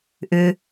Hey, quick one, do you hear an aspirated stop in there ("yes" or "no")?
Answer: no